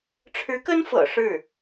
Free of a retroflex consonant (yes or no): no